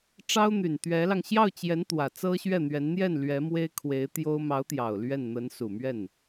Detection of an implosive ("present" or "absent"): absent